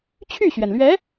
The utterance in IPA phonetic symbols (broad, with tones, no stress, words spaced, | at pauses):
t͡ɕʰy˥˩ɕɥɛ˩nlɥɛ˧˥